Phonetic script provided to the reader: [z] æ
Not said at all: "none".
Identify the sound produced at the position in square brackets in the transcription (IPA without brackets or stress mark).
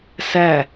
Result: s